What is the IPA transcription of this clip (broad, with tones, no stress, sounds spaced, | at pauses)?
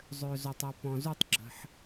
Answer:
zˤ ø˨ z o˨ tˤ ɤ˨ p ɔ̃˨ z u˥˧ tˤ ɡ͡ǁ ə̤˨ ħ